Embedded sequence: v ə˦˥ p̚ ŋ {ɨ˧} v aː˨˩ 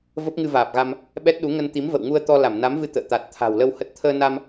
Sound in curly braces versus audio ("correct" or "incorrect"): correct